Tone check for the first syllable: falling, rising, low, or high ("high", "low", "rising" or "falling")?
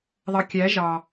low